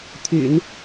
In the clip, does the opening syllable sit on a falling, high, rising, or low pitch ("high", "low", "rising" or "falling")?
low